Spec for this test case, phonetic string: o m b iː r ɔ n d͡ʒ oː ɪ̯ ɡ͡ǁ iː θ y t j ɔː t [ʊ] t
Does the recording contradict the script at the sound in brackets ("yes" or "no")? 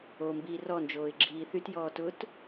no